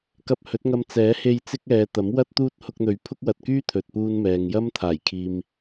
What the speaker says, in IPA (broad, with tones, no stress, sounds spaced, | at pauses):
k ɐ˧ p̚ h ɵ˨˥ t̚ ŋ ɐ˧ m t͡s ɛː˨˥ h e˧ j t͡s ɪ˥ k̚ ɛː˨˧ t̪ ɐ˨˥ m w ɐ˥ t̚ t̪ uː˥ t̚ h ʊ˧ k̚ n̪ ɵ˨˧ ɥ pʰ ʊ˥ k̚ w ɐ˧ t̚ k yː˥ t̪ʰ ɵ˨ t̚ p uː˧ n m ɛː˨ ŋ j ɐ˥ m t̪ʰ aː˨˩ j kʰ iː˨ m